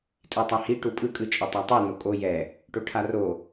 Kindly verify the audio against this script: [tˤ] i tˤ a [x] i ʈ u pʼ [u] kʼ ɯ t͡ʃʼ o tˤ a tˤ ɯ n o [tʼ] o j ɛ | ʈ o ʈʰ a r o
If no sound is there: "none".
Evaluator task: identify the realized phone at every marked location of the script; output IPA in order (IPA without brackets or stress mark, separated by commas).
tʼ, h, ɯ, kʼ